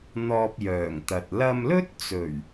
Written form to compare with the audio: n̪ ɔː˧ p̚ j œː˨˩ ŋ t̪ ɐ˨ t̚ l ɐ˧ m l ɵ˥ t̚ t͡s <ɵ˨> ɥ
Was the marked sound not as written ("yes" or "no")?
yes